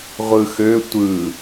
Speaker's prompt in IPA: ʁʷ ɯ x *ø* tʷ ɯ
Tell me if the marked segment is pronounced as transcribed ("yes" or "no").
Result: yes